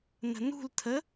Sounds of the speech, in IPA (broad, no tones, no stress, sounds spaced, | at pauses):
n ə̤ n ṳ l tʰ ə